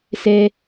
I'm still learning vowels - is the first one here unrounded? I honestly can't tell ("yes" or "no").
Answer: yes